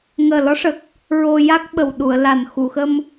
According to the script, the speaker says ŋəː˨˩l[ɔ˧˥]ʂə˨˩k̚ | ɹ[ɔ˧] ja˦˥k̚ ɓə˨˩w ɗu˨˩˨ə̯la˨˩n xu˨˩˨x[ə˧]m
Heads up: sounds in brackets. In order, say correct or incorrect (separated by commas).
correct, incorrect, correct